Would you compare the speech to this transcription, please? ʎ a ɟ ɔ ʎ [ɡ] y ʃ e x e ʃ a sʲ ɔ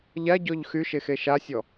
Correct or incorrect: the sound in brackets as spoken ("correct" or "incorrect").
incorrect